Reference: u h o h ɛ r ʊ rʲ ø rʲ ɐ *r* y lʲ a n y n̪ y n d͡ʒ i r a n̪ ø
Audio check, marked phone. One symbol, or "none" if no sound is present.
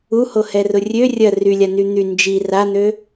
r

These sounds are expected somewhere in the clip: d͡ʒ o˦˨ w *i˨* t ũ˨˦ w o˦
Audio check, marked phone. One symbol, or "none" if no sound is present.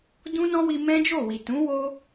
i˨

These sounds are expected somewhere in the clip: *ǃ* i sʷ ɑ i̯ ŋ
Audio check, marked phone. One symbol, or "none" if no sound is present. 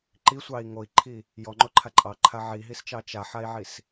ǃ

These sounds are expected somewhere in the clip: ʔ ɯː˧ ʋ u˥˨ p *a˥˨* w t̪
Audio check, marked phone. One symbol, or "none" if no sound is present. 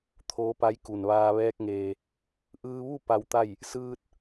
a˧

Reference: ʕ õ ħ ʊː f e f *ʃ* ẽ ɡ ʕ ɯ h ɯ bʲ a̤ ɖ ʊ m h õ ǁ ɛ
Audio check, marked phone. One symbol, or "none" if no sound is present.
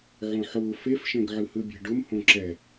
ʃ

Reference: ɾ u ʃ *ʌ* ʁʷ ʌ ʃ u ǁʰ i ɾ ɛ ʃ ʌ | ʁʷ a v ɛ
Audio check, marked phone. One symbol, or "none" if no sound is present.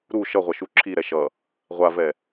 ʌ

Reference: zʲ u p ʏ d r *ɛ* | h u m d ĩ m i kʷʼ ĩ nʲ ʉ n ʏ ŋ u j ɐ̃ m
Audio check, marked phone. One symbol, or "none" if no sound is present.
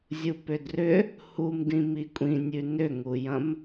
ʏ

